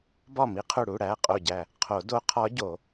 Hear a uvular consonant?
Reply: yes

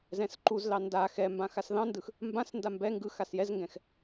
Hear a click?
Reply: yes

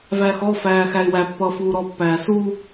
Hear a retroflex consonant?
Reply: no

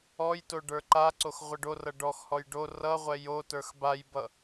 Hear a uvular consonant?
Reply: yes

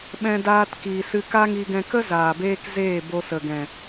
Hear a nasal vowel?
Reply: yes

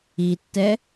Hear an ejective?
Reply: no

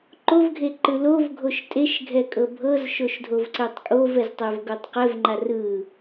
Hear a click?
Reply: yes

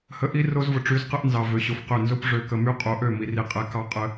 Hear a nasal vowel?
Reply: no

